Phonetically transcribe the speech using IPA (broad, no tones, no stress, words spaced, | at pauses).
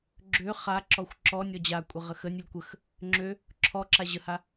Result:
ɡ͡ǁø χaǁɔxʷ ǁɔnʲɔ d͡ʑakʷʼə ʁəxənʲʊlʲ kʷəx | ŋ͡ǁø | ǁʰɔǁa ʑəha